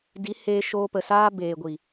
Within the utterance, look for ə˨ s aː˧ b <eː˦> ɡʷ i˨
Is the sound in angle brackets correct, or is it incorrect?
incorrect